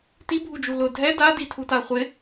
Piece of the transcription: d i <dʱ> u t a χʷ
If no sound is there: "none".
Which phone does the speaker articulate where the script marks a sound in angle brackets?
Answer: tʰ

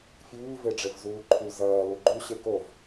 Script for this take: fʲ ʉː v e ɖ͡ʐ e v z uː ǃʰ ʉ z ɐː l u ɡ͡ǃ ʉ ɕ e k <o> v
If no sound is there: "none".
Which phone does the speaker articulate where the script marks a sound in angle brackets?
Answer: o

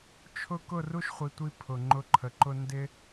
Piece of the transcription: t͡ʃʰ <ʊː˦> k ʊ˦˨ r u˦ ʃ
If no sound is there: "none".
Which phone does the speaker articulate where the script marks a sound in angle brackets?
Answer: ʊ˦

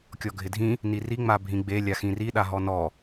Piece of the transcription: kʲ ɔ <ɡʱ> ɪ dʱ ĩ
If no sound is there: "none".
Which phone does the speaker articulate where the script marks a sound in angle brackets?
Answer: ɡʱ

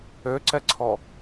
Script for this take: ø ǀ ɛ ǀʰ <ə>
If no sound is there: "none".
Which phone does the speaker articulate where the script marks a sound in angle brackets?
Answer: ɔ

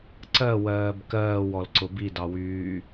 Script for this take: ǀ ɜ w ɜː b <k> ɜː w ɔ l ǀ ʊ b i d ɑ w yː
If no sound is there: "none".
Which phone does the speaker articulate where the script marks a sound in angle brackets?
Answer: k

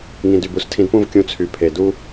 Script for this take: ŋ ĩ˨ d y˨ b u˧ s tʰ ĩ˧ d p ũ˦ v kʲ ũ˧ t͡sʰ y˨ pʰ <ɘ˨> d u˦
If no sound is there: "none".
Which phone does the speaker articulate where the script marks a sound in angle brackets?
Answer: e˨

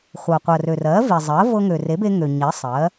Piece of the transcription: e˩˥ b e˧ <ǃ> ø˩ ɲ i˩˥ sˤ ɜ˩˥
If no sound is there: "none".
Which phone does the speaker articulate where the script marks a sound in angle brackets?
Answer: ŋ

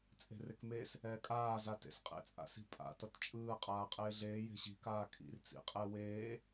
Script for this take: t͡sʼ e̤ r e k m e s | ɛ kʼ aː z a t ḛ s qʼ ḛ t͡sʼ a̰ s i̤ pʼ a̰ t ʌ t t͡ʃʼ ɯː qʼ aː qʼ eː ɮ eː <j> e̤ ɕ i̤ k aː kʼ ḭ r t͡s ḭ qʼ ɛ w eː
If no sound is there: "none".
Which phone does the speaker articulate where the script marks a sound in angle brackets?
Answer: j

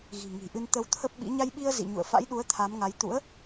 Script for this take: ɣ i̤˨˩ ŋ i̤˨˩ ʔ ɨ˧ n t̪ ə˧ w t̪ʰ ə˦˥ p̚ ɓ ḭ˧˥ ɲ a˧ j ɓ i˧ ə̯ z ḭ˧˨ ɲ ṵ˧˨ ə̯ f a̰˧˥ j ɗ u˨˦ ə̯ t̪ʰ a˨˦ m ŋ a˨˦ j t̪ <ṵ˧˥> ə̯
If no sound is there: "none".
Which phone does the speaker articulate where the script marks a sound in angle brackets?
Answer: ṵ˧˥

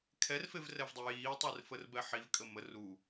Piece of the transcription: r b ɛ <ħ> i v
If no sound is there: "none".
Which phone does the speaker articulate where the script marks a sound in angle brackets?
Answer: ħ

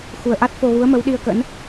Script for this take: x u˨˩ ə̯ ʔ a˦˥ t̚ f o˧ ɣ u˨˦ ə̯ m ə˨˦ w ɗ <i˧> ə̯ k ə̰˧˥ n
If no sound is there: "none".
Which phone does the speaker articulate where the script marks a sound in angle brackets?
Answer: i˧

